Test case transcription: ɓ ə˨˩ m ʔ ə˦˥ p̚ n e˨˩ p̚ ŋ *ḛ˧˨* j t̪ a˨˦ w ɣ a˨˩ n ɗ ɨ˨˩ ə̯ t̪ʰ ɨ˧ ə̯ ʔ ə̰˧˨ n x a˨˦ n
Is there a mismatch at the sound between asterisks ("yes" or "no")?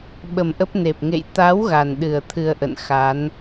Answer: no